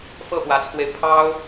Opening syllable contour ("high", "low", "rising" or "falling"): falling